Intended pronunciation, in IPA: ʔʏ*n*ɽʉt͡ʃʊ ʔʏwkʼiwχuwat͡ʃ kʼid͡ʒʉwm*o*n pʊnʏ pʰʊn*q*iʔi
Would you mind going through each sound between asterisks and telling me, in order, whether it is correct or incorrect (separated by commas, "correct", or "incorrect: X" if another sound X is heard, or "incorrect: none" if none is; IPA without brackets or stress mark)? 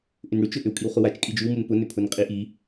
correct, incorrect: u, incorrect: qʼ